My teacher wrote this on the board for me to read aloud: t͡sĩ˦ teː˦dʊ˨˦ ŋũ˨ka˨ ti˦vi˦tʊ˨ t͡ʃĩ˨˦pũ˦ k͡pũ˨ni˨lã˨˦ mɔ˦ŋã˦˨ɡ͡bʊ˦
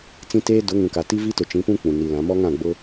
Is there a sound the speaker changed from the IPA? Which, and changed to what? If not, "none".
none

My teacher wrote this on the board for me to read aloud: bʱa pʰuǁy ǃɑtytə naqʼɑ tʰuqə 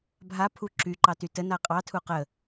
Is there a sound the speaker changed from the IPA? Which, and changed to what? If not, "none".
none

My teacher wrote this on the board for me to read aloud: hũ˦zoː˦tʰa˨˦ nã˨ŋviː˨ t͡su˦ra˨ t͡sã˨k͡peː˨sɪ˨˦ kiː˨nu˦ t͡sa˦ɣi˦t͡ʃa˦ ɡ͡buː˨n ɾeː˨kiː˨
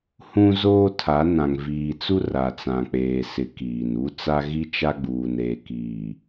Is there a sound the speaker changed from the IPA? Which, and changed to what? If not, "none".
none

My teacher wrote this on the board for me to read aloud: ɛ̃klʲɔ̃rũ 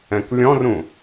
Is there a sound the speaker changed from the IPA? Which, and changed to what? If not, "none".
none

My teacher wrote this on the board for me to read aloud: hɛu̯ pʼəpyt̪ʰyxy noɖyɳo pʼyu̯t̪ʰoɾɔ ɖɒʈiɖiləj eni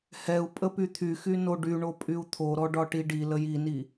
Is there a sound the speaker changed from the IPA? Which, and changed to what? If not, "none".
e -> i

